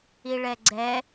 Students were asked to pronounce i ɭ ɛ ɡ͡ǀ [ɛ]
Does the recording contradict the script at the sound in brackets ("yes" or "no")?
no